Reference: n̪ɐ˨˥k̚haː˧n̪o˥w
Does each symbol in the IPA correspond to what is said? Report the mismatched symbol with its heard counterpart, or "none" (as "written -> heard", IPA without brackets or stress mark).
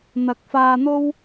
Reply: h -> f